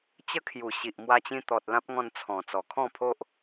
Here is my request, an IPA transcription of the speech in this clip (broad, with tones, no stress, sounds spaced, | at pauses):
t͡ɕ ə˦ kʰ j u˨˩ ɕ i˨ ʔ m w a˧ t͡ɕ ĩ˧ t̪ ɔ˨ t̚ l ã˦ p̚ ŋ ɔ̃˧ n t͡sʰ ɔ̃˨˩ t͡s ɔ˨˩ kʰ ɔ̃˥˧ pʰ o˦ ʔ